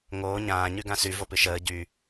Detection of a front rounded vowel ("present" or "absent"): present